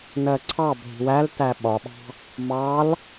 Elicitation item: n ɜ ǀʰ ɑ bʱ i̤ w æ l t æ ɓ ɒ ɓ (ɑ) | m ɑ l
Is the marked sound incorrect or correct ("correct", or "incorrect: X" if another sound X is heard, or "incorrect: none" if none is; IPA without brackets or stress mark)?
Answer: incorrect: ɑ̤